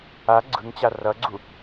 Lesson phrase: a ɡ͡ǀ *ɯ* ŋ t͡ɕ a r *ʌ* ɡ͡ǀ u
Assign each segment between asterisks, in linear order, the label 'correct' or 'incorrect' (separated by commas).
correct, correct